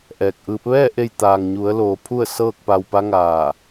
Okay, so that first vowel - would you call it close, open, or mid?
mid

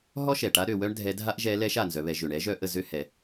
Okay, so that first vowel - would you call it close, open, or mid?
mid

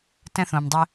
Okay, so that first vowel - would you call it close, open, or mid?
mid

